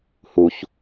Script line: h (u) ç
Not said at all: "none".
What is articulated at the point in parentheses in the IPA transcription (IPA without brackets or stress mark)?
u